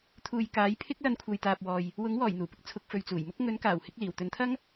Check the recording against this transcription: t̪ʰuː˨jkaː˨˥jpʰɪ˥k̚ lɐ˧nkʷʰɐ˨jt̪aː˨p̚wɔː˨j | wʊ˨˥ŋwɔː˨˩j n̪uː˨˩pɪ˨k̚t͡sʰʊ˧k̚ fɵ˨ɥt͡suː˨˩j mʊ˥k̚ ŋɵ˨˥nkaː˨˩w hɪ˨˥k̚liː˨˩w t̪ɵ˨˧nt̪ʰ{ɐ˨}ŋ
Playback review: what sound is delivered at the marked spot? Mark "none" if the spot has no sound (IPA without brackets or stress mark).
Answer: ɐ˥